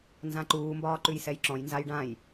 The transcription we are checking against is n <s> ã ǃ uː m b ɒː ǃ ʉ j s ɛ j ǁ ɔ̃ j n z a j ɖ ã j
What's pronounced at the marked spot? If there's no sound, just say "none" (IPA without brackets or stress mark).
z